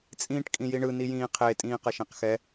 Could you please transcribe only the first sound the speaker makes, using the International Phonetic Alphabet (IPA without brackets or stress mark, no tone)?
t͡sʼ